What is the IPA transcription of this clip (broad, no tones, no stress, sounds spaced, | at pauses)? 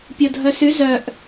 pʲ o dʱ œ s y z œ ʔ